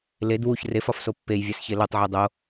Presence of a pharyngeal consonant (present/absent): present